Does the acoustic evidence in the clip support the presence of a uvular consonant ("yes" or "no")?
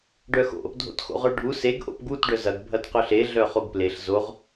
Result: yes